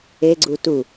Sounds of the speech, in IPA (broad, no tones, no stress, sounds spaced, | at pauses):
e ɡ͡ǀ u t u